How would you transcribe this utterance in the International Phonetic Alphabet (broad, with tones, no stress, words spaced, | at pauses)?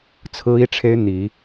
t͡sʰɹ̩˦i˦ʈ͡ʂʰe˦ɪ̯ n̪i˨˦